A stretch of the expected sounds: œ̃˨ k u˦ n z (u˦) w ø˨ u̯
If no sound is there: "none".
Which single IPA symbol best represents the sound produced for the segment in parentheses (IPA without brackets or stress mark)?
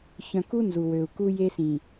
u˨